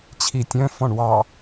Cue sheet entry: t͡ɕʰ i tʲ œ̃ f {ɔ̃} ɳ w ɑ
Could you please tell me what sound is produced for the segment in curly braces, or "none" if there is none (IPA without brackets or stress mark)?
ɔ̃